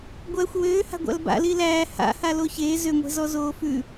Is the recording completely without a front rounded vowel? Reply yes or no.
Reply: no